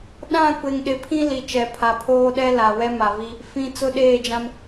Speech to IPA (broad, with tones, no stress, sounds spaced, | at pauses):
ɗ ã˦˨ kʷ e˨ ŋ ɗ ɪ˨ pʰ ĩ˦ l i˨ t͡ʃ ɛ˨ pʰ a˨ pʰ oː˦ ɗ ɛ˦ l a˨ w ɛ˦ m a˨ v i˦ | f ĩ˨ t͡s ʊ˦ ɗ eː˦˨ d͡ʒ ã˦ m